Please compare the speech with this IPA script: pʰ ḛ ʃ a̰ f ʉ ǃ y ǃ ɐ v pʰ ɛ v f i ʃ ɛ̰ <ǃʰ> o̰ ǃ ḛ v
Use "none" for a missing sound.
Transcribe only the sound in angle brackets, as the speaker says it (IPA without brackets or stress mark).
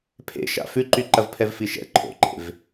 ǃʰ